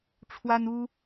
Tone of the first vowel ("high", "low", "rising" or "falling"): high